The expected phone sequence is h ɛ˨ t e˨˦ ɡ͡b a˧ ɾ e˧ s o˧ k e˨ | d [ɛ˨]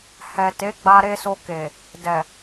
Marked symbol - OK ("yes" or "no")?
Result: yes